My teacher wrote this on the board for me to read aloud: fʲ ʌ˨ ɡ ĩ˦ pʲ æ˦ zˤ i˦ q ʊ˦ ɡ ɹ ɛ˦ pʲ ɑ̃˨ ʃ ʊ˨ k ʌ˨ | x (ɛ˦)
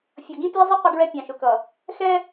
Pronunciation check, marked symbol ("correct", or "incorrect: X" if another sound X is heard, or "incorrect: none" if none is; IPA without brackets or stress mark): correct